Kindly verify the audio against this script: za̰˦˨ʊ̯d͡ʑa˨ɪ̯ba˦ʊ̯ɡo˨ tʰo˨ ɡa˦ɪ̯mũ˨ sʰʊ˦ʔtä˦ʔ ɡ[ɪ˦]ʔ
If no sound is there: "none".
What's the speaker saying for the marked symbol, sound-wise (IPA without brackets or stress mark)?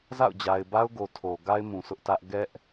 ɛ˦